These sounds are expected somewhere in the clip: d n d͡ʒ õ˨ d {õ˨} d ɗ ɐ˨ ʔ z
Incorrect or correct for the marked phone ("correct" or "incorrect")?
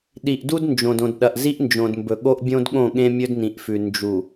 correct